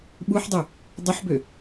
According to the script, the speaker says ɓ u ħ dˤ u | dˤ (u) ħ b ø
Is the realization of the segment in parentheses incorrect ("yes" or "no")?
yes